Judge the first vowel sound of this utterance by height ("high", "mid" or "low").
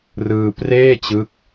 high